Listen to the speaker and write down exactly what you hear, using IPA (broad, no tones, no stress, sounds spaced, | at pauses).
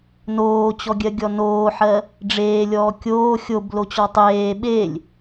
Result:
n oː t͡ɕ ɔ ɡʲ ɜ ɡʲ ɔ n oː ħ ɜ | ɖ͡ʐ eː lʲ ɔː kʲ oː xʲ o b l o t͡ɕ ɔ tˤ eː ɓ e lʲ